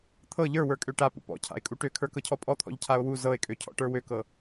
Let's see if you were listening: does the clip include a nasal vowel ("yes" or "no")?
no